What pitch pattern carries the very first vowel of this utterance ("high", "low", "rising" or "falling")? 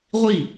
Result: falling